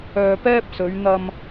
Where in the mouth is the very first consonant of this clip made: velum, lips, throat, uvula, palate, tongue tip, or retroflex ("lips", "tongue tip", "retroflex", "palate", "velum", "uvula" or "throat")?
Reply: lips